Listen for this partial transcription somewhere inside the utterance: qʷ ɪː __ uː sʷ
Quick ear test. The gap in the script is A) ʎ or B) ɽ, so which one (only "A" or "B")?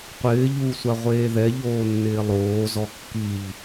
A